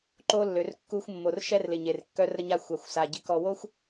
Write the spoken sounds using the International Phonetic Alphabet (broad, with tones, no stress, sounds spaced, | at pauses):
ǃ o˦ lː ø˨ r kː u˧ xʷ mː o˨ r ʃ ɛ˦ r l ɪ˨ ɲ e˨ r kː œ˧ r ɾ ə˧ ɲ a˧ xʷ a˨ xʷ s a˨ ɟ ɪ˧ k ɔ˧ w o˦ xʷ